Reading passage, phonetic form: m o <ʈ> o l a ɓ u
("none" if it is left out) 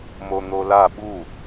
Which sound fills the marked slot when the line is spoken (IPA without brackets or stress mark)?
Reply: n̪